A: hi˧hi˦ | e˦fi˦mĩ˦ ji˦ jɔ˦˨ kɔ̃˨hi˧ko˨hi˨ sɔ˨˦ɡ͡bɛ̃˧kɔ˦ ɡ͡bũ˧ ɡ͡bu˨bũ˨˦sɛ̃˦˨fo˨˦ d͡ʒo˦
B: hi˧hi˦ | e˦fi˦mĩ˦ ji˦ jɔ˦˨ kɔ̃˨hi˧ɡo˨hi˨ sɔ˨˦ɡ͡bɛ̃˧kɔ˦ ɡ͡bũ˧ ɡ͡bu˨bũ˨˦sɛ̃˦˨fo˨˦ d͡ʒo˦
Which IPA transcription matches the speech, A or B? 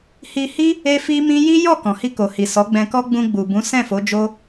A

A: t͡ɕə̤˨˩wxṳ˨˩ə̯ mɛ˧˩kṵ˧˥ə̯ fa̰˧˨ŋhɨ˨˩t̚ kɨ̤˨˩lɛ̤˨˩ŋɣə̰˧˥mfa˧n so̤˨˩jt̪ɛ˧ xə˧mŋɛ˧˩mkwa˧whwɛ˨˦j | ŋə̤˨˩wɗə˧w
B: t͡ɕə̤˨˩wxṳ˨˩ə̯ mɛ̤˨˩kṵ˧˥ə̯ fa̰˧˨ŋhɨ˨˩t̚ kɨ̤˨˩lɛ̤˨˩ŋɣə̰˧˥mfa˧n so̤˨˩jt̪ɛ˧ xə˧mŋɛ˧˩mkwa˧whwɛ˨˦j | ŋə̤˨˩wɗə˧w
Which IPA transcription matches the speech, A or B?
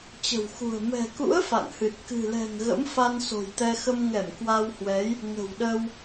B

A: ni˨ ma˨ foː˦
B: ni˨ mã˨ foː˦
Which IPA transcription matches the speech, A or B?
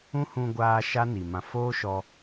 B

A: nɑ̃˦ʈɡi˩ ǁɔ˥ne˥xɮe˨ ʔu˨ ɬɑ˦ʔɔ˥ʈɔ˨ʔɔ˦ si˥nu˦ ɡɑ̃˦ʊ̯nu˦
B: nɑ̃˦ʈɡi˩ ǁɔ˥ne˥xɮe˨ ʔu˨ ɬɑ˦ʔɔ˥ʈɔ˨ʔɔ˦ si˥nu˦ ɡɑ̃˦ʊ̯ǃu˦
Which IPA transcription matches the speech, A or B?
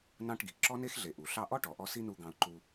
B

